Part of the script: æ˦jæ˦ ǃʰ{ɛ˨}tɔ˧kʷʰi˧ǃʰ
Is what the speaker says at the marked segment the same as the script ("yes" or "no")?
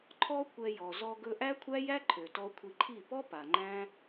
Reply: no